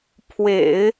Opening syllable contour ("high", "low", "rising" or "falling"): low